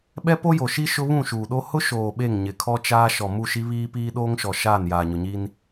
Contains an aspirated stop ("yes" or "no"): yes